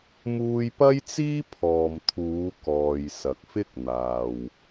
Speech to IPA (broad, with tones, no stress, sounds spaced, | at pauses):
m uː˧ j p ɐ˥ j t͡s iː˥ pʰ ɔː˨ m t̪ʰ uː˨˧ k ɔː˨ j s ɐ˨ k̚ f ɪ˥ k̚ n̪ aː˨ w